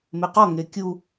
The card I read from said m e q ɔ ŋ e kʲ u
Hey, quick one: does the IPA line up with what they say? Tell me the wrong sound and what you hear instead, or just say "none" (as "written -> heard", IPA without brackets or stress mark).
none